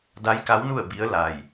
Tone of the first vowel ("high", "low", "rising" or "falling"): rising